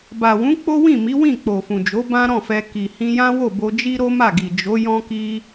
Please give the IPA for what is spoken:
b a˨ w ũ˨˦ k͡p o˦ w ĩ˦˨ m i˨˦ w ĩ˦˨ k͡p o˨ f ũ˨ d͡ʒ o˨˦ b ã˦ ɾ ɔ̃˦˨ f ɛ˧ k i˨ h ĩ˧ j ã˦ w o˦˨ b o˧ d͡ʒ i˦ ɾ o˦ m a˦˨ ɡ i˨ d͡ʒ o˨˦ j ɔ̃˦ k i˦

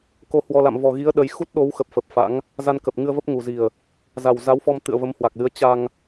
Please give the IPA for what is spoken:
k o˧ h w ɔ˧ l a̰˧˨ m v ɔ˨˩ ɣ i˨˦ ə̯ ɗ ə˨˦ j x u˦˥ t̚ ɗ o˨˦ w x ə˨˩ p̚ f ə˨˩ p̚ f a̰˧˥ ŋ | z a˧ n k ə˨˩ p̚ ŋ ɨ˧ ə̯ v ə˦˥ p̚ ŋ u˨˩ z i˨˩ ə̯ | z a˨˩ w z a˨˦ w f ɔ˧ m t̪ ɨ̰˧˨ ə̯ v ə˨˦ m h w a˨˩ k̚ l ɨ˨˦ ə̯ t͡ɕ a˧ ŋ

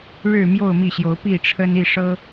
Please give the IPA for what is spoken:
ɻ ɻ̩˥˨ m j o˥˨ ʊ̯ m i˥˨ ɕ j o˨˦ ʊ̯ p i˥˨ ʈ͡ʂʰ ə˦ n i˥˨ ʂ ɤ˦

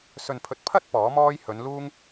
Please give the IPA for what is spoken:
s ɵ˨ n pʰ ɵ˨ t̚ pʰ ɐ˥ t̚ p ɔː˨˥ m ɔː˥ j h ɵ˨˧ n l uː˥ ŋ

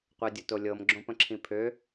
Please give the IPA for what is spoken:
qʷ e dʲ ə t o lʲ ɤ m ɡ͡ǁ õ p ə̃ ǁʰ ĩ pʰ ø

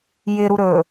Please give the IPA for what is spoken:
j ɪ ɾ u ɾ ɵ

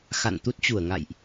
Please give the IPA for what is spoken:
x a̰˧˨ n t̪ u˦˥ t̚ t͡ɕ u˧˩ ə̯ ŋ a̰˧˨ j ʔ

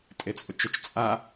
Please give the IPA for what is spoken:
tʼ e t͡sʼ ʊ t͡ʃ ʊ t͡ʃ t͡sʼ a

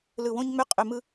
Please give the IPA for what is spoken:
l ɯ˧˩ w õ˥ ɲ ŋ͡m ʏ˥˧ qʼ ʏ˧ m ɯ˥

